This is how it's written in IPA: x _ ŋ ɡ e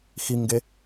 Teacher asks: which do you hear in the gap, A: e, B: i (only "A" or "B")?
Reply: B